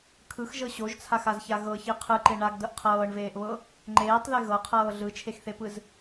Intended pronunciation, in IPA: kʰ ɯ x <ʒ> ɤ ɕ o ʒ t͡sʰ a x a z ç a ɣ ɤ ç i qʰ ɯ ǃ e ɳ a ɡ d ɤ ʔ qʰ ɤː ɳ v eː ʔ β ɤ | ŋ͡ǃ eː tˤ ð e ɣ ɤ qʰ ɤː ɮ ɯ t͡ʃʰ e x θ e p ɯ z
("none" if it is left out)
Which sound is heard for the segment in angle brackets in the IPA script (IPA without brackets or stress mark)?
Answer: ʒ